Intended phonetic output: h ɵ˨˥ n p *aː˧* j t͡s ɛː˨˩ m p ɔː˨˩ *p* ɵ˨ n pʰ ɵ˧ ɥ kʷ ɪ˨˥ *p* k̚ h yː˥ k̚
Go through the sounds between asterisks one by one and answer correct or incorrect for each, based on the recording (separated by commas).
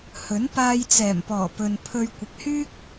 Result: correct, correct, incorrect